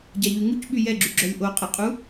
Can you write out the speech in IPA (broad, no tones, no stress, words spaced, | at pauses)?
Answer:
ɟaʎyŋuc ɓyjɛɡ͡ǁy ɡ͡ǁœlʲʔo qʼəqʼu